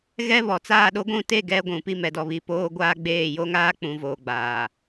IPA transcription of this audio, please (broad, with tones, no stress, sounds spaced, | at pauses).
ɣ ɛ˦ β ɔ˨ t͡s aː˦˨ ɗ o˦ ɡʷ ũ˦˨ t e˦˨ ɡ ɛ˦ ɡʷ ũ˨ p i˦˨ m ɛ˨ d ɔ˨ β i˨ p oː˦ ɡʷ aː˦ ɡ͡b eː˦˨ j o˦ ŋ aː˦ k͡p ũ˨ v oː˨ ɡ͡b aː˨